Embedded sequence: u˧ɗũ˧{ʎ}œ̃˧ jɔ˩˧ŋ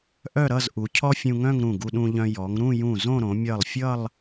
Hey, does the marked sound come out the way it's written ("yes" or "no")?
yes